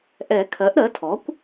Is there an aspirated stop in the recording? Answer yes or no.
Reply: yes